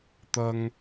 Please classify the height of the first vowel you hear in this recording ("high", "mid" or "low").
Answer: low